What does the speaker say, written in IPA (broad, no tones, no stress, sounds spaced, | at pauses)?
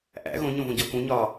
ʔ æ̰ ɣ õ ɲ õ v õ ɟ ɒ k ũ ɲ ɒː